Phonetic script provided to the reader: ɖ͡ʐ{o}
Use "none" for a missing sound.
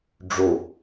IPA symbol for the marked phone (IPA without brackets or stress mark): o